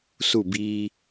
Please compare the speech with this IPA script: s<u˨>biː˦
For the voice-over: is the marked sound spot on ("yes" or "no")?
no